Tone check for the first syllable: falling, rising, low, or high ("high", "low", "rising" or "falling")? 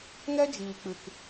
high